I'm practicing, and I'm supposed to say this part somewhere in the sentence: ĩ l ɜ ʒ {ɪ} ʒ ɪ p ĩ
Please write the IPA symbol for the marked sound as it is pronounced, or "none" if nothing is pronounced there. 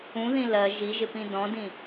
i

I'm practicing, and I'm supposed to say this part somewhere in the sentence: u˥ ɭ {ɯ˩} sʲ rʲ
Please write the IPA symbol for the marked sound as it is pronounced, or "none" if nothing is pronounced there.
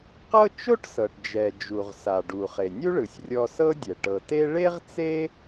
ɯ˩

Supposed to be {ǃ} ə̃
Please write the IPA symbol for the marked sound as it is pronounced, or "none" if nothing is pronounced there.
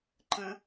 ǃ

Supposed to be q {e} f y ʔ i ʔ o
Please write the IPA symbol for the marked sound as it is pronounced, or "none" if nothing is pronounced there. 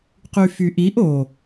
y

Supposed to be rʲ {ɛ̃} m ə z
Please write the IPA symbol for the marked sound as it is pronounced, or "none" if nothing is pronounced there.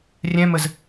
ɛ̃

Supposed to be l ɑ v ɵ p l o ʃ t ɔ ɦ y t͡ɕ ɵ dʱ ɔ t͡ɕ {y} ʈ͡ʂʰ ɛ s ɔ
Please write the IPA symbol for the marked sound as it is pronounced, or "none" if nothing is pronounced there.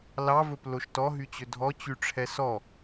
y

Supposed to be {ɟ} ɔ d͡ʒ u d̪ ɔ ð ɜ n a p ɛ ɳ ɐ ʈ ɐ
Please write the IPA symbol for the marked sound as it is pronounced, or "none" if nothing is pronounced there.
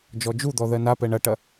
d͡ʒ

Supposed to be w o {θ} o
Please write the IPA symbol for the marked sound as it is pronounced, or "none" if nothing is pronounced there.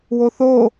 θ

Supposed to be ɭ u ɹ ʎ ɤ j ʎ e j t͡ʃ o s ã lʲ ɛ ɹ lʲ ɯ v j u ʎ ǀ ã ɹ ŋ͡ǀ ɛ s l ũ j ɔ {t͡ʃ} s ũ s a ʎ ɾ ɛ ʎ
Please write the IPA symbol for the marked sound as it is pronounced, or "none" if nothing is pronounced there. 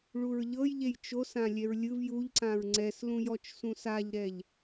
t͡ʃ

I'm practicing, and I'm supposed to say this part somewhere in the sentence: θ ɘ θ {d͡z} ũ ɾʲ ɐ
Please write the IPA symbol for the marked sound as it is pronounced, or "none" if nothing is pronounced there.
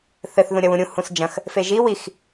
ð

